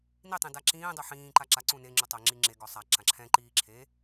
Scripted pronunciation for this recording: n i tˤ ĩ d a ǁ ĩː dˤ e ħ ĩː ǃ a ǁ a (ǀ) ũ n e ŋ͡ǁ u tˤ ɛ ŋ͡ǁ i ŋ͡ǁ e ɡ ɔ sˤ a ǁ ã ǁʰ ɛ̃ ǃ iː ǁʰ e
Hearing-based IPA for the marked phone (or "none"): ǀ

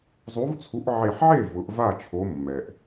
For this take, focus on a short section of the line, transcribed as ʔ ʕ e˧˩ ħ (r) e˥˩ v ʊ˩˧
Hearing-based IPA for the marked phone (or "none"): ʕ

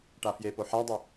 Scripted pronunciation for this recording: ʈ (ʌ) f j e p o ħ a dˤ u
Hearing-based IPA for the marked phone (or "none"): a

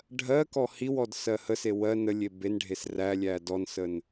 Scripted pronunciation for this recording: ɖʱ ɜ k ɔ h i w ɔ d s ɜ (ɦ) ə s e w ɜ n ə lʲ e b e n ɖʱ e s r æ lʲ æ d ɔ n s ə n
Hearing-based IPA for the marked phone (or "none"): h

